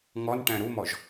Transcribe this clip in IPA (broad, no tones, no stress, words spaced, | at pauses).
ŋɔnʈæ̃ ɾumɔʒ